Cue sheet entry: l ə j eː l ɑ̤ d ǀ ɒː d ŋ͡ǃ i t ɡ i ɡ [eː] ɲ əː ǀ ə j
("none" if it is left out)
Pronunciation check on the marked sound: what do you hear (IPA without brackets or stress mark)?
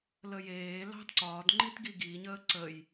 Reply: iː